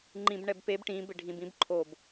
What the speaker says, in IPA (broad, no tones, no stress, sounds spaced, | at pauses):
ŋ͡ǃ ĩ b ɳ ɛ b p e b ʈ ĩ b ɪ ɖʱ ĩ b ĩ b ǃʰ o b